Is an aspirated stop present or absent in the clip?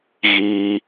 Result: absent